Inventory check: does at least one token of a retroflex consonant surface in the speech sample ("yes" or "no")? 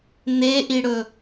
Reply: yes